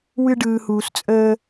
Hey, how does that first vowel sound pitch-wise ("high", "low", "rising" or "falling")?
high